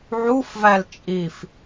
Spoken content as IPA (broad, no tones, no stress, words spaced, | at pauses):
ʕufvæl t͡ʃʼif